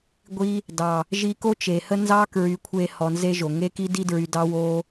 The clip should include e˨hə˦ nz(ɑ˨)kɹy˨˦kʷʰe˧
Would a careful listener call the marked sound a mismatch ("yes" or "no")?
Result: yes